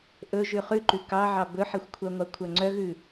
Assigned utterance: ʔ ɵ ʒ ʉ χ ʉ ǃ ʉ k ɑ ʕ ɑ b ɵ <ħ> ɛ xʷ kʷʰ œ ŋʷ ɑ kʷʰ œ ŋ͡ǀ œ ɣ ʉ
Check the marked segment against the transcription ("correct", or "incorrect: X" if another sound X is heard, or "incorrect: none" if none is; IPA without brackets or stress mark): correct